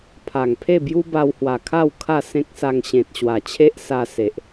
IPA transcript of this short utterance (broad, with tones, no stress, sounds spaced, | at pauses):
pʰ a˨˩ ŋ pʰ e˥˧ b j u˦ b a˧ w h w a˨˩ kʰ a˥˧ w kʰ a˥˧ s ẽ˦ k̚ s a˧ ŋ ɕ ẽ˨ t̚ ɕ w a˨˩ t͡ɕʰ e˦ ʔ s a˧ s e˨ ʔ